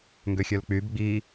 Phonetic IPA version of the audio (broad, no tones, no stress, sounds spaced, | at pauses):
ŋ ɡ ø xʲ œ l k͡p y b ɡ͡b i